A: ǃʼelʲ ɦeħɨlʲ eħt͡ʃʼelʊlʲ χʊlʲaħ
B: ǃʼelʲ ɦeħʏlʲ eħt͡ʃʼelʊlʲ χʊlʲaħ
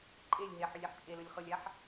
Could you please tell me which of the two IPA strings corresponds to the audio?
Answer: B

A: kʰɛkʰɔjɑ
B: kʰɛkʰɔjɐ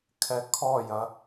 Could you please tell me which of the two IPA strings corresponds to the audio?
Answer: B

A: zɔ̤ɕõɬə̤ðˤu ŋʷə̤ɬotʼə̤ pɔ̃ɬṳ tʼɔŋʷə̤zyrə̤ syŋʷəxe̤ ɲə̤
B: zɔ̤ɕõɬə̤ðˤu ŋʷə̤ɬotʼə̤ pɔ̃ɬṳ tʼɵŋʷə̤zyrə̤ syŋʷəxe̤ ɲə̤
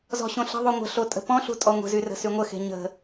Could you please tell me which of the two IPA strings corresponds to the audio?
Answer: A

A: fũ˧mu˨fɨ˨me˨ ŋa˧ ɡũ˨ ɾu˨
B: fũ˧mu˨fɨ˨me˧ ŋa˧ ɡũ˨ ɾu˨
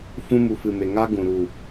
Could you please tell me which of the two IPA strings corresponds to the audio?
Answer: A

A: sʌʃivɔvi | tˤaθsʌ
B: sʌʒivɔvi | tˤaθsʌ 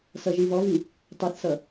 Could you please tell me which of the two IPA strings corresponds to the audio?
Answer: B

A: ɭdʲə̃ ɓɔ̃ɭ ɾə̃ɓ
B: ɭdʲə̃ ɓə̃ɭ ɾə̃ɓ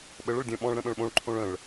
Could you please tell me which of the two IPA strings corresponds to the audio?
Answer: A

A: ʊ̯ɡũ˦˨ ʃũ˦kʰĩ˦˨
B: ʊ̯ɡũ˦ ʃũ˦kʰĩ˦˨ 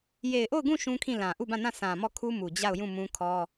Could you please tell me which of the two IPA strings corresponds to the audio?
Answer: A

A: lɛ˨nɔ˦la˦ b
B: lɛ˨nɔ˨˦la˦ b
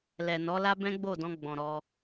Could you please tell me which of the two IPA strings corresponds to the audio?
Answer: B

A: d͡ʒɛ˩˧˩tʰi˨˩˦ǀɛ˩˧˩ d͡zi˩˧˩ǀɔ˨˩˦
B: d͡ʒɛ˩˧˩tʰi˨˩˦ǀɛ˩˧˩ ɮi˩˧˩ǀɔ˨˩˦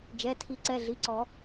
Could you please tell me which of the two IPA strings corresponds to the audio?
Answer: B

